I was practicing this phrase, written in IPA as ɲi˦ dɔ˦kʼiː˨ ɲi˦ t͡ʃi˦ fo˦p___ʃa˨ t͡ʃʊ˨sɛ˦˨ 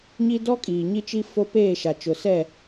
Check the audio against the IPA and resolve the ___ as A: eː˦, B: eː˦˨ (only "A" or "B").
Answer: B